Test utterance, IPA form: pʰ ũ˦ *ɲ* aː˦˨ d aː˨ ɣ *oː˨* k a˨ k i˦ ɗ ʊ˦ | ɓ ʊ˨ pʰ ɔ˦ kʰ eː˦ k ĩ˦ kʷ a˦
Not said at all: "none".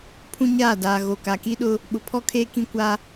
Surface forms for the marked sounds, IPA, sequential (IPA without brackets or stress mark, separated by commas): ɲ, o˨